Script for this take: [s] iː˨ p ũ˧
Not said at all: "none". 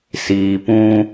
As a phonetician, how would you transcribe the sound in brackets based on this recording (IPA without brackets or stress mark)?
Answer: s